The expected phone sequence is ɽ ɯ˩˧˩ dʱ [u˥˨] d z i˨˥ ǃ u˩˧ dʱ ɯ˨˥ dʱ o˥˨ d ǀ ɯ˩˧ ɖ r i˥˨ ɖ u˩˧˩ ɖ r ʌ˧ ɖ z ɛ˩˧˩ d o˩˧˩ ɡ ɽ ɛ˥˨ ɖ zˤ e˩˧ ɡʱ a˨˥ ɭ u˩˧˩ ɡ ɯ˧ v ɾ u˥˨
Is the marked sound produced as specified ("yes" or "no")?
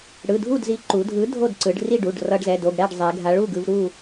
yes